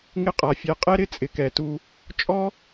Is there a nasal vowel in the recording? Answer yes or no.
no